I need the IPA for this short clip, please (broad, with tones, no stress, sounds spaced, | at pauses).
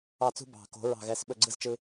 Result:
ɑ˦˨ t͡s ṳ˦ b ɑ̤˨ k o̤˨˦ ɹ ɑ̤˦˨ ɣ ɛ˧ s ɓ ɵ˦˨ ɡ͡ǀ ɯ˦ z t͡ʃ ɯ˧